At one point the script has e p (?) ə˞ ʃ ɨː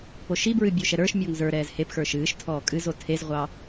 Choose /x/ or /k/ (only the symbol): x